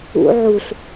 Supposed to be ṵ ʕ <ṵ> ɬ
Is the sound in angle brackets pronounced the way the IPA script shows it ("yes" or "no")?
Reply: no